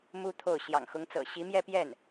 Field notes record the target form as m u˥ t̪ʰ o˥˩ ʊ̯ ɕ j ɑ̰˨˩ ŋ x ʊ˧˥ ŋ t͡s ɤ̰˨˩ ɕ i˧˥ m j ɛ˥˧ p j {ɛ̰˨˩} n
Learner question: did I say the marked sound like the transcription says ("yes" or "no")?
no